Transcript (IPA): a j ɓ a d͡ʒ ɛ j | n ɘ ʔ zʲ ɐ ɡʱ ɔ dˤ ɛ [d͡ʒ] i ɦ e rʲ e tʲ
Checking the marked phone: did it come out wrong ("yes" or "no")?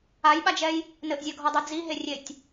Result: yes